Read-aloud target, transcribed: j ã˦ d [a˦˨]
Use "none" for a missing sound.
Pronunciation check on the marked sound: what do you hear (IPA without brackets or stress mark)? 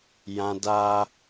a˦